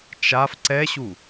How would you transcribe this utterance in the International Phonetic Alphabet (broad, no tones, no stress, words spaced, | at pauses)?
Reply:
t͡ʃaf ǀɛɕu